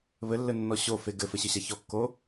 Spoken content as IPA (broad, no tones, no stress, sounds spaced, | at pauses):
β ɘ lː ɘ nː ɔ ɕ o f e ɡ ɘ f ɘ ɕ ɘ ɕ a ç ɔ kː o